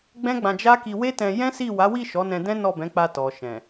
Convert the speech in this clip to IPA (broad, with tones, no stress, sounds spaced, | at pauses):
ɡ͡b ɛ̃˦ ɡ͡b ã˧ d͡ʒ a˦ k i˧ w e˦ t ɛ̃˧ j ɛ̃˦ s i˦˨ w a˨˦ w i˦˨ ʃ ɔ˨˦ n ɛ̃˧ d ɛ̃˦ n ɔ˦˨ b ɛ̃˨˦ k͡p a˧ t ɔ˨ ʃ ɛ̃˨